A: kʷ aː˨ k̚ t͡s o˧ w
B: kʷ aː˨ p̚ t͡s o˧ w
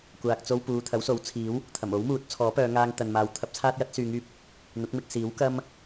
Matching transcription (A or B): A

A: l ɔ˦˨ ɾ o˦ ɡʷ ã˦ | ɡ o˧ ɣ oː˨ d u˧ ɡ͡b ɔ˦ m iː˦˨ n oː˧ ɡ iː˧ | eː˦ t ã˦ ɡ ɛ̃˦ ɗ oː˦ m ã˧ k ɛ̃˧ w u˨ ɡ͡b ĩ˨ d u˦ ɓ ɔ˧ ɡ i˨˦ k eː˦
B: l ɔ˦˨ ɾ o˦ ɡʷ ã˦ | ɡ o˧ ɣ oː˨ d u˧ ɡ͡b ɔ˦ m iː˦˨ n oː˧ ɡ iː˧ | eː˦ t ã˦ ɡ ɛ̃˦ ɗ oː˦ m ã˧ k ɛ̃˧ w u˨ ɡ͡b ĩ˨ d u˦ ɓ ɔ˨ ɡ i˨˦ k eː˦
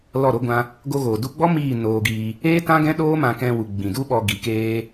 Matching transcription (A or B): A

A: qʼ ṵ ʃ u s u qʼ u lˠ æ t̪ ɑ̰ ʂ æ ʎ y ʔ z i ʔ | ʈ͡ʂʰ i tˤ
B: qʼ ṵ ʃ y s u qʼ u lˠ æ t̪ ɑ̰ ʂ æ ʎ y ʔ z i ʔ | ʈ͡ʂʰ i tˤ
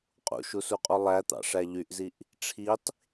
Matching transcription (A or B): A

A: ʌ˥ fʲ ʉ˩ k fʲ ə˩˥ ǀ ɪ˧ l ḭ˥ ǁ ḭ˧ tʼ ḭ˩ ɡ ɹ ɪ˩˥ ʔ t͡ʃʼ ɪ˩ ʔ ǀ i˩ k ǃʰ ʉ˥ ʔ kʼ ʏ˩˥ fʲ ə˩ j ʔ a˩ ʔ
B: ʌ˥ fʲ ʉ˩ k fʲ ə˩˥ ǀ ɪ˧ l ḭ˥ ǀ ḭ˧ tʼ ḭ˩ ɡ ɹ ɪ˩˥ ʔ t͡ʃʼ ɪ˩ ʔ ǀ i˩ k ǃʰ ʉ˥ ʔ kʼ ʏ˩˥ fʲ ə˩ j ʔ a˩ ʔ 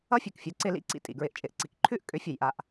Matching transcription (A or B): B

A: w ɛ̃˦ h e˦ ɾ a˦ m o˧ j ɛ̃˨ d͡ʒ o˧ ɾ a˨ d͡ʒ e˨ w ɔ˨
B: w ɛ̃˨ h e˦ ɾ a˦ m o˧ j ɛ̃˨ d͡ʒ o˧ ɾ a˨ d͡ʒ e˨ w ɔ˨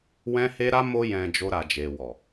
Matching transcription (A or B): A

